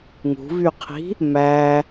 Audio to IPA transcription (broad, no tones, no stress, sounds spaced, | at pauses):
ŋ ṳ v y qʰ i̤ | m æ